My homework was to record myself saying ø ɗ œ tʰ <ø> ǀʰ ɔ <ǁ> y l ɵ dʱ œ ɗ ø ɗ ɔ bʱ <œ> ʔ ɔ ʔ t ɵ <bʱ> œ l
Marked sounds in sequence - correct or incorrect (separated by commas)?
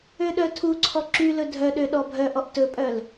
incorrect, correct, correct, incorrect